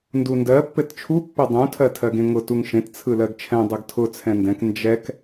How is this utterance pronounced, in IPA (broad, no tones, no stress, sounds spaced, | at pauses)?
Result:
n d u n d ɜ pː ɘ t t͡ʃʰ u pː ɘ dˤ ũ tʰ ɜ tʰ ɜ ɡ ẽ ŋ ʊ t u ŋ ʃ ẽ t t͡sʰ ɯ l ɜ ɡ t͡ʃʰ ɛ̃ dˤ ɯ ɡ tʰ ʊ t͡sʰ ɛ̃ n d ɛ̃ k n d͡ʒ ɛ k